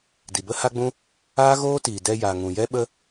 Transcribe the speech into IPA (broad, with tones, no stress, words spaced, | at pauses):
di˨bə˦ha˦ɡ͡bũ˦ | aː˦ɣoː˦tiː˨ dɛ˧ja˨ ŋũ˨jɛ˦ɓə˦